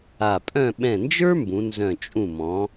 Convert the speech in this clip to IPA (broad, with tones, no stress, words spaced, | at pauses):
a˧˩pʼœ̃˥˧ ɓɛ̃˧˩nd͡ʒə˞˥ mbũ˩˧nzœ̃˧˩ t͡ʃʼũ˧˩mɔ̃˩˧